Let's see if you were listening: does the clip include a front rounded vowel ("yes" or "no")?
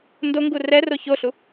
no